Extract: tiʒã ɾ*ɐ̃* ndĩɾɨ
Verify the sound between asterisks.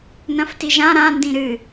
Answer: incorrect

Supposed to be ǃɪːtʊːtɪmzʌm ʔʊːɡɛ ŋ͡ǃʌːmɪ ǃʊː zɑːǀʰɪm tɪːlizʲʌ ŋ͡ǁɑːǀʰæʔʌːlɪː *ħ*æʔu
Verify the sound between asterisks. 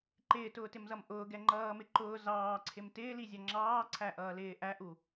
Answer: incorrect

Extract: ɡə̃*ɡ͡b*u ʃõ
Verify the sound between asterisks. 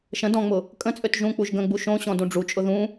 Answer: correct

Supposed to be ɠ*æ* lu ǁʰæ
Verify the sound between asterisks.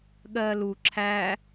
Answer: incorrect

